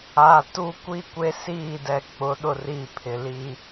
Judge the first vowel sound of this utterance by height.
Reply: low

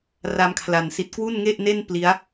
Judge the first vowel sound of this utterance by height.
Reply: low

